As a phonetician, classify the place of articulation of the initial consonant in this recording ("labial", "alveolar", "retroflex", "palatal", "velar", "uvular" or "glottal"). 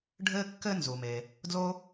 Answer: retroflex